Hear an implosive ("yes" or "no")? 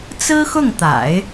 no